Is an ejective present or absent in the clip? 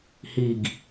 absent